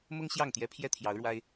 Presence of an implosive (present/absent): absent